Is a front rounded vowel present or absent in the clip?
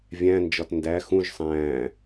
absent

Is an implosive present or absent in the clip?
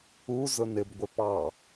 absent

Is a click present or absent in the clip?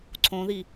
present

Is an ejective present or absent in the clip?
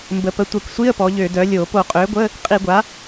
present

